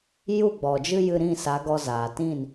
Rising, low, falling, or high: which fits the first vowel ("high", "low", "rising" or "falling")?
falling